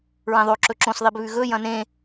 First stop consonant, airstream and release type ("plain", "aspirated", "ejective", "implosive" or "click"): click